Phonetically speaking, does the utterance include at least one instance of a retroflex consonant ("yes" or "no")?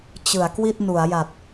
no